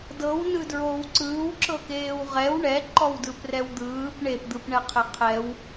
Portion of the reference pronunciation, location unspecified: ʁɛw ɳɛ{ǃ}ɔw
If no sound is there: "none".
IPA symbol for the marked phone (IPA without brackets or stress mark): ǃ